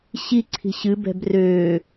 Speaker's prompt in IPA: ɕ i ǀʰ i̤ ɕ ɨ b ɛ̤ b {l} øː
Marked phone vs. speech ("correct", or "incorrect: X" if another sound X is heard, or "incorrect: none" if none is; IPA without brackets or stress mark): incorrect: r